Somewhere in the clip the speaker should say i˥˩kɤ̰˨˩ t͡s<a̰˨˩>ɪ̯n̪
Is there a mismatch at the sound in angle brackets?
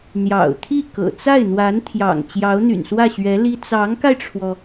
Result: yes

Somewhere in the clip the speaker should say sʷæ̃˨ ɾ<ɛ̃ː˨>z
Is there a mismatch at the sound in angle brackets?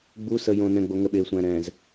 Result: no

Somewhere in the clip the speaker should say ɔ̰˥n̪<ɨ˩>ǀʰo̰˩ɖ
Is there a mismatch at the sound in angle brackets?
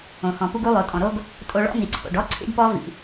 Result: yes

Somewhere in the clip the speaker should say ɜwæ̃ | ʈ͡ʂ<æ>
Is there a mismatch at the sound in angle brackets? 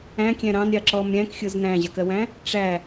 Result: no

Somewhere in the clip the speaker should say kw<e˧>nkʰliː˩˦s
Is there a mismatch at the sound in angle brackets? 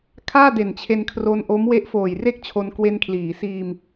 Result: no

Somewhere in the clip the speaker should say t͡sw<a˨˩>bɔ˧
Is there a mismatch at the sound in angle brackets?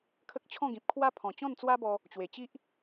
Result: yes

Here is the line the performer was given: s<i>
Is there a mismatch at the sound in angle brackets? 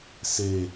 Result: yes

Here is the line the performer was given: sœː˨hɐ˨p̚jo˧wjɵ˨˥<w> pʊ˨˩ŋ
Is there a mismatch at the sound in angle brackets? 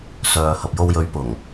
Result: yes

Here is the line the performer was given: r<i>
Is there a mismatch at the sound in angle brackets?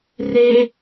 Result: yes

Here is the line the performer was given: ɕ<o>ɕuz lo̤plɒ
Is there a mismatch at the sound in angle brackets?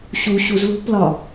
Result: yes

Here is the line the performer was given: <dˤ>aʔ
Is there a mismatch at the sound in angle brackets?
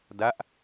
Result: yes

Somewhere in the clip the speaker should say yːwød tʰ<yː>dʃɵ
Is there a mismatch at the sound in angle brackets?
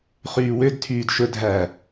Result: no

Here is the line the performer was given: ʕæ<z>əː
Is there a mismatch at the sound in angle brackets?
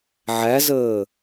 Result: no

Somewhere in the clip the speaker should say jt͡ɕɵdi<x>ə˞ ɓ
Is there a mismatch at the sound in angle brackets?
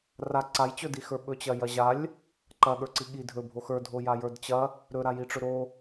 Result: no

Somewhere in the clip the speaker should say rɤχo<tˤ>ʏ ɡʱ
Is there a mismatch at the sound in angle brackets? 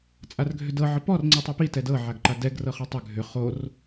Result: no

